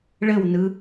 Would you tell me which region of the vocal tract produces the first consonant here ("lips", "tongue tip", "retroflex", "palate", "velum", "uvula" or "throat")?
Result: retroflex